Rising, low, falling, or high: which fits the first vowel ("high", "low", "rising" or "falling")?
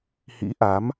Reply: rising